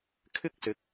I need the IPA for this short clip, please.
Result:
kʰ ɪ˥ k̚ s ɪ˨˥ k̚

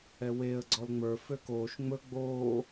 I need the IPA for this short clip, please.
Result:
ɛ w e ə̯ ɡ͡ǀ ɔ l ŋ͡m ə˞ f ø k oː ʃ ŋ͡m ɵ ɡ͡b oː

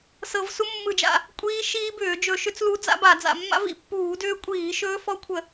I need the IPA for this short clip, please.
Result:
s ɤ˧˩˧ v s u˦˥ mː ɯ˧˩˧ d͡ʒ a̰˧˩˧ | kʷʼ iː˦˥ ʃ iː˦˥ b ʏː˧˩˧ d͡ʒ ɵ˧˩˧ ʃ ʏ˦˥ t͡s l u˦˥ d͡z a̰˦˥ b a˧˩˧ d͡z a̰˧˩˧ mː a̰˦˥ v ḭ˧˩˧ pː uː˧˩˧ d ʏː˦˥ kʷʼ iː˧˩˧ ʃ ɵː˦˥ f ɔ˦˥ kʷʰ ə˧˩˧

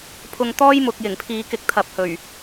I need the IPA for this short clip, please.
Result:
pʰ ʊ˧ ŋ t̪ ɔː˥ j m ʊ˨ k̚ j ɪ˨˩ ŋ pʰ iː˨˧ k ɪ˨˥ k̚ t̪ʰ ɐ˨ p̚ h ɵ˨˩ ɥ

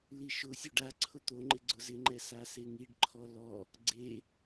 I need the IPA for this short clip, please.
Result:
l i ʃ ʊ sʲ o ɖ a ǀʰ ʊ t̪ o ŋ͡ǃ ɪ ɡ͡ǀ ʊ z ɪ ŋ͡ǃ ɛ s a s e ŋ i ɖ ǃʰ ɔ l ɔ | ɡ͡ǀ e

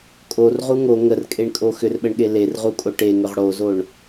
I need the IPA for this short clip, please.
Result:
kʼ o r ʁ u ŋ o ŋ ə r kʼ e ɳ kʼ o x ʏ r ɓ ə ɳ ɠ e l e r ʁ u kʼ o ʈ e ŋ ʏ ʁ ɽ o z o ɳ

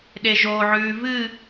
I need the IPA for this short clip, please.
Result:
ɗ e ʒ o ʕ ʉː v ɨ

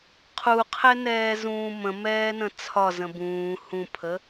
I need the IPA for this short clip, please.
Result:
qʰ u qʰ ɛ n ɛː z ũː m ə̃ m ɛː n ə̃ t͡sʰ ɒ z ə̃ b ũː h ũ pʰ ə

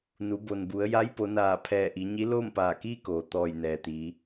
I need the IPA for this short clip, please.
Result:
n u˩˧ b o˩ n b u˩˧ ə̯ j a˧˥ j p o˩˧ n aː˧˩ pʰ ɛː˧˩ ʔ i˩˧ ɲ i˧˥ l oː˥˨ m p aː˧˩ k iː˥˨ k oː˩ t̪ ɔː˧˩ j n ɛː˩ t̪ iː˩˧

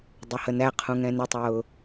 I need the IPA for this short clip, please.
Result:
dˤ ʊ h ə n æ qʰ ũ ŋ ɛ̃ n ɪ tˤ ʊː

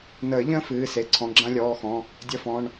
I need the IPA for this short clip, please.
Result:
n əː˨˩˦ ʎ ə̃ː˥ f ɨː˩˧˩ s e˩˧˩ ǀʰ ɔ̃˩˧˩ ɡ͡ǁ ã˥ lʲ ɔː˩˧˩ x ɔ̃˩˧˩ | dʲ ə˧˥˧ f ɔ̃˩˧˩ ɳ

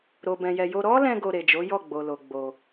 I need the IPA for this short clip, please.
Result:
ɾ o˨ b ɛ̃˨ j ɛ˨ j o˧ ɾ ɔ˦ l ɛ̃˧ ɡ o˧ ɾ e˨ d͡ʒ o˨˦ j ɔ˦˨ ɡ͡b o˨ l o˨ ɡ͡b o˧

